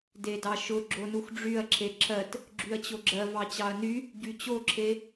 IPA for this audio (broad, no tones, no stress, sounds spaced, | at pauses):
d e d ɑ ʃ ʊ ɡ͡ǁ o n u x ɖ͡ʐ y ɐ̯ ǁʰ e ǁʰ ɜ t | ɡ͡ǁ y ɐ̯ t͡ɕ o ɡ͡ǁ ɜ v ɑ t͡ɕ ɑ ɐ̯ n y | ɟ y t͡ɕ o ǁʰ e